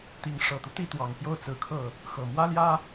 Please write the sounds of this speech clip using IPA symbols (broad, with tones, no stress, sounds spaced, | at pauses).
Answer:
t̪ i˧˥ ŋ ʂ ɤ˨˩ t̪ u˦ t̪ i˥˩ t̪ w ɑ˨˩ ŋ p j o˥˩ ʊ̯ t͡s ɹ̩˧˥ kʰ ɤ˥˩ | x ɤ˨˩ m w ä˥ l j ä˥